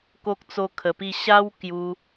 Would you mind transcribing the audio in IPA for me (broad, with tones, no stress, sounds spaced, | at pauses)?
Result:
k o˦ k̚ t͡s o˦ kʰ ə˧ p i˥˧ ɕ a˦ w k j u˧